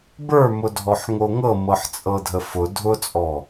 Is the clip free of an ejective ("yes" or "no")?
no